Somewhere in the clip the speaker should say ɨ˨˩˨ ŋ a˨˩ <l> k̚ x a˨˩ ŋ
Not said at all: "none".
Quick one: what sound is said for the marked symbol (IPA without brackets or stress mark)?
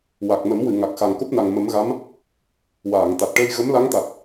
none